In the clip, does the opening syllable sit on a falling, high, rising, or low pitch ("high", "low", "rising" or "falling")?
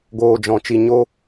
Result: low